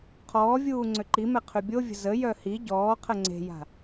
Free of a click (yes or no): no